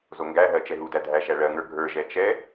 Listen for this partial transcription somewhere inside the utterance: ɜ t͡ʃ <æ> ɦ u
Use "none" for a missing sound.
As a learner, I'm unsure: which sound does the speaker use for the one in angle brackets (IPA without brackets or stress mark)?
ɛ